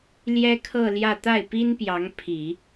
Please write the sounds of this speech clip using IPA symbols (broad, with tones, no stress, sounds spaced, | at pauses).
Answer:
l j ɛ˥ kʰ ɤ˥˧ l j ä˥˧ t̪ a˥˩ ɪ̯ p i˥ n p j ɑ˧˥ ŋ pʰ i˨˩˦